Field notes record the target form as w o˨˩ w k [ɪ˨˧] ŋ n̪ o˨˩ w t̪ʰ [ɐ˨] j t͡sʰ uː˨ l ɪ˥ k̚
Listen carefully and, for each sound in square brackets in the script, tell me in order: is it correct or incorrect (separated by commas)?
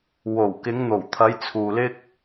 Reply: correct, incorrect